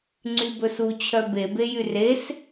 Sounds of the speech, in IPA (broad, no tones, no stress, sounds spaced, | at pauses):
ŋ͡ǀ y b ɵ s u t͡ɕʰ œ b e b e j y r e s